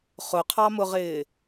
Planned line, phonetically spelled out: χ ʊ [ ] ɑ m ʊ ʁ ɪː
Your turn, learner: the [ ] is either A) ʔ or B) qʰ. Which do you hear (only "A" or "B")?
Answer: B